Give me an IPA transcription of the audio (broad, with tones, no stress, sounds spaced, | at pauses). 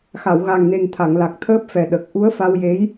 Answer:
x a˨˩˨ w ɣ a˨˩ ŋ n e˨˩ ŋ t̪ʰ a˨˩˨ ŋ l a˨˩ k̚ t̪ʰ əː˦˥ p̚ f ɛ˨˩ ɗ ə˨˩ k̚ ʔ u˧˥ ə̯ f a˧ w j e˧˥ j